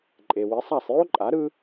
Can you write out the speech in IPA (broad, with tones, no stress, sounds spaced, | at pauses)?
ǃʼ e˩ w i˩˥ sˤ a˥˩ sˤ j o˥ ǃʼ a˩˥ ɾ ɯ˥